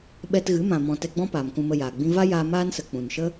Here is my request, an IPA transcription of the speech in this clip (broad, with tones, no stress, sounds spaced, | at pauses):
ɓ ɛ˧ t ɣ ɨ˨˦ m ã˨ m ɔ̃˧ t ɛ˧ ɡ͡b ɔ̃˦ p aː˨ m k ũ˧ m ə˧ j aː˨ ɡ͡b ĩ˧ v a˦ j aː˧ m aː˦ n s ə˨ k͡p ũ˨ n ʃ ə˦